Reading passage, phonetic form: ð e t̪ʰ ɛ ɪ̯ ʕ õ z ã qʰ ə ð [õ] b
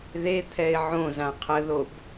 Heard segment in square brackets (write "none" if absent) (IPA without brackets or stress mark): o